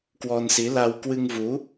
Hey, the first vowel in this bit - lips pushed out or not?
yes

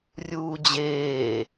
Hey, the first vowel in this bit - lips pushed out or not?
yes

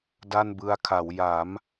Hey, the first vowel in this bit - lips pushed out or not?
no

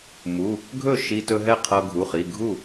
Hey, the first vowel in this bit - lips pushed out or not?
yes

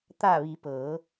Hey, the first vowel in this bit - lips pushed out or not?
no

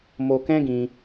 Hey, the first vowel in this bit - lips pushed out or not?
yes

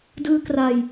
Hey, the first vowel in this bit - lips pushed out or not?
no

